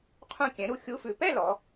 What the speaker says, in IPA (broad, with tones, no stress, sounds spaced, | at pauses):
qʰ ũ˥˨ kʲ ɛ̃˨˥ ɾ u˥˨ xʲ u˧˥˧ f ʉ˧˩ p ɛ˥˨ l ɔ˨˥